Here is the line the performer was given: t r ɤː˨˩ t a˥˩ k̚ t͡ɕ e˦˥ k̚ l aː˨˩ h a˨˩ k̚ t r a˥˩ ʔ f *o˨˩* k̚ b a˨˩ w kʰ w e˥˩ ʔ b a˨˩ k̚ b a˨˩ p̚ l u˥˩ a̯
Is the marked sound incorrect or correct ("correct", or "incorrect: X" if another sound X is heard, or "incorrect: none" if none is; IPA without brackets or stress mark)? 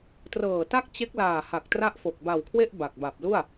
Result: correct